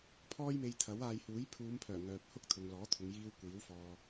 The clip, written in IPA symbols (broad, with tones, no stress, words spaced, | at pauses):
pʰɔː˥jme˧jt̪ʰɐ˨˥waː˧j huː˨˥j pʰuː˨˧mpʰœː˨˩ ŋœː˨p̚hʊ˥k̚ t̪ʰʊ˨ŋlɔː˨˥t̪ʰʊ˨˧ŋjiː˧w kʷiː˨˥w fɔː˨